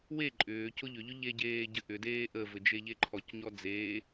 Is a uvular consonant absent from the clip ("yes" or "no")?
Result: yes